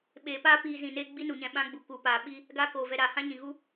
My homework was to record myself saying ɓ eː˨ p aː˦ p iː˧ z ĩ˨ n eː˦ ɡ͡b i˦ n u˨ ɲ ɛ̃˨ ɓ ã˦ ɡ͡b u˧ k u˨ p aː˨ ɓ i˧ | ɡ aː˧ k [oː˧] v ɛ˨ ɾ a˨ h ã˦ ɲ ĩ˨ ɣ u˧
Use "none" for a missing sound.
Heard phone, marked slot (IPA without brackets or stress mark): oː˨